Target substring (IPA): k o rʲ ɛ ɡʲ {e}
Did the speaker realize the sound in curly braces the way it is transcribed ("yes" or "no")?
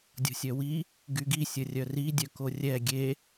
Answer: yes